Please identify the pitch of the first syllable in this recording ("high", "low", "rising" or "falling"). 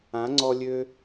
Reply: rising